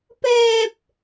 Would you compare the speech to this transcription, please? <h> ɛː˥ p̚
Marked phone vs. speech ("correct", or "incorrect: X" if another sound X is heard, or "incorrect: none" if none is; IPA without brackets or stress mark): incorrect: p